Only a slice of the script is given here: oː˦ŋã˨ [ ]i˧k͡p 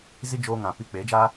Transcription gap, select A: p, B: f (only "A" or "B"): A